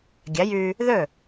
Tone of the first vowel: rising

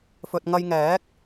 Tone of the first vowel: low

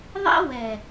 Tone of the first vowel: high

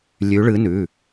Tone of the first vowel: rising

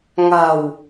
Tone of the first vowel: low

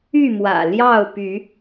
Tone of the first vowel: falling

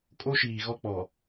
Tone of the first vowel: high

